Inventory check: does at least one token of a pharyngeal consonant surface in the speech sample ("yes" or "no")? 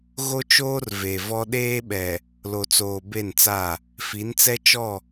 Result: no